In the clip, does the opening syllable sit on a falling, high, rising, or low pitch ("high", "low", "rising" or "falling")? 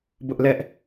high